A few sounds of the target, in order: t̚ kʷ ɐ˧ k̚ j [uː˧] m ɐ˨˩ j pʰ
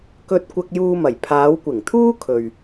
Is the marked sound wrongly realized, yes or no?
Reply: no